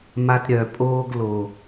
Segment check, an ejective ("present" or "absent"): present